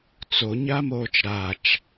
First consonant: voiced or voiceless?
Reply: voiceless